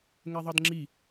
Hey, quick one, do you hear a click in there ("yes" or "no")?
yes